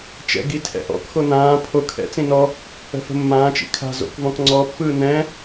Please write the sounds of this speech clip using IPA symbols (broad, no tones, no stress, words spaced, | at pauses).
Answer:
t͡ʃɛ̰ɡi tʰɛ̰ʔɔ̰kxo nãː pʰo kʰɛ̰t͡sĩ nɔ | ə̤fə̤mːãːt͡ʃḭ kʰa̤ zo̰kvɔ̃k ŋ͡ǀɔpːɯː nɛ̃